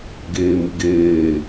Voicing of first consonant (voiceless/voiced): voiced